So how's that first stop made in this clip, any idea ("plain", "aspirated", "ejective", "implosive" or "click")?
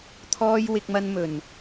aspirated